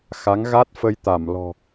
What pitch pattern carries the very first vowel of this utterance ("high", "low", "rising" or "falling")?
rising